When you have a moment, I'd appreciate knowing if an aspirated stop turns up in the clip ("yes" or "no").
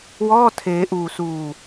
yes